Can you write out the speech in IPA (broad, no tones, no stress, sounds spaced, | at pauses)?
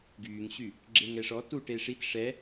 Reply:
ɡ yː ŋ ɕ y | ɡ͡ǁ e ŋ ɛ ʂ ɔ t u ʈ e ʂ i t ʂ ɛ